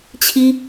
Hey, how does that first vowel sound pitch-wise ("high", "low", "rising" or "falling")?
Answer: high